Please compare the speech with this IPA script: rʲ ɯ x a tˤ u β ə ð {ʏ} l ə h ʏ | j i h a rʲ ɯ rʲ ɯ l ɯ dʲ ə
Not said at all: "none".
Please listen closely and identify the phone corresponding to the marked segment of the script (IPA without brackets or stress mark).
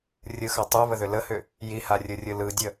ʏ